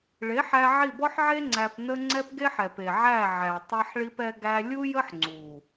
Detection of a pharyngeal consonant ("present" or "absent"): present